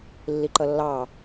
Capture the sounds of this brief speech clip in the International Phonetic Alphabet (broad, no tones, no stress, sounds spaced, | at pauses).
lː i ǃ ʌ lː ɑ